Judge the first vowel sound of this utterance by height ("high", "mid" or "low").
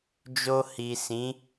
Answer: mid